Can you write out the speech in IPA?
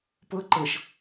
p ɤ ǃ ɤ ʃ

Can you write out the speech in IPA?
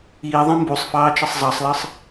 iː ðˤ ɛ̃ m b u sˤ f ɑː t͡ʃ ʌ sˤ zˤ ɑ sˤ l ʌ sˤ

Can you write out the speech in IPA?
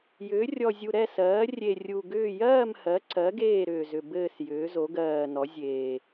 j ʏː˩˧ rʲ ɔ˨˩ zʲ u˨˩ ɾ ɛ˦˨ s ɜː˩˧ rʲ e˨˩ rʲ u˨˩ ɡ ʏː˦˨ j ɜː˦˨ m h ɜ˩˧ ǀ ɜ˩˧ ɡ eː˦˨ ɾ ʏː˨˩ z ʏ˨˩ b ɘː˦˨ s j ʏː˩˧ z o˩˧ ɡ ɜː˨˩ n ɔ˩˧ zʲ eː˨˩

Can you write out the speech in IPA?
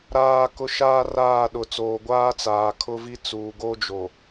ɾ aː˨ k ʊ˨ ʃ aː˦ r aː˦˨ ɗ ʊ˨ t͡s oː˨ ɡʷ aː˦ t͡s aː˨ kʰ ʊ˦ v i˦ t͡s uː˨ ɡ o˦ d͡ʒ o˨

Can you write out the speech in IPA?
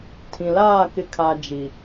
tʰ ĩ˨ l aː˦˨ k ɪ˨ kʰ a˨ d͡ʒ i˨

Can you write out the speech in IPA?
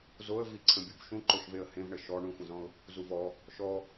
z o ə̯ v i ǀʰ ə̃ bʲ u b ʃ ũ ǃ o ʃ v e ə̯ h ẽ v ɳ ə ʃ ɔ ɳ ũ xʷ ə̃ z ɔ̃ ʊ̯ | z u v ɔ | ʃ ɔ

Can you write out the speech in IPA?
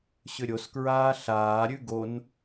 ɕ ʏ ɾʲ o s k ɹ aː ɬ aː ɾʲ ʉ ɡ o n

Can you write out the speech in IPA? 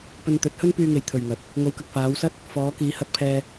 p ɵ˧ n t̪ ɵ˨˥ t̚ h ɵ˥ n p yː˧ ŋ e˨ j t̪ʰ ɵ˨ ɥ ŋ ɐ˨ t̚ | ŋ o˨˧ w k ɐ˨ k̚ f aː˨˧ w s ɐ˥ t̚ | f ɔː˨˧ k iː˨˧ h ɐ˧ t̚ pʰ ɛː˧

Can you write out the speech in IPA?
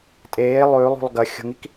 tʼ eː lˠ ʉː lˠ ṳ lˠ ɡ ɐ xʲ o̤ ŋ i k

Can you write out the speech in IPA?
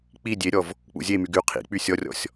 k͡p i dʲ e ɾʲ ɔ v | k͡p ṵ zʲ e m y ɡ y qʰ ḭ k͡p y sʲ ɔ rʲ ɔ̰ sʲ

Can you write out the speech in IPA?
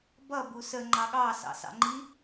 b ʌ b u s ə ŋ͡ǃ ɑ ɠ ɑ s ɑ̰ s ɑ̰ ŋ͡ǃ i

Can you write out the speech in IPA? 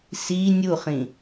s i nʲ u χ ĩ

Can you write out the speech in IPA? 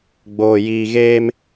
ɡ͡b oː˧ j iː˦ ɣ eː˦ m

